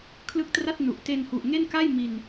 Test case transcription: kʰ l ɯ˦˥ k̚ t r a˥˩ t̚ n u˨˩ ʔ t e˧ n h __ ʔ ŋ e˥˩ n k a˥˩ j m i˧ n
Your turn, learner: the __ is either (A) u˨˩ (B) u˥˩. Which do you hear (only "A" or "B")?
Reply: A